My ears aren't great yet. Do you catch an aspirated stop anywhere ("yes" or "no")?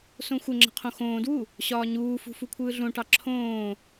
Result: yes